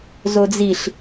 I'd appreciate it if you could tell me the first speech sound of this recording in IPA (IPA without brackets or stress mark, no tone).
z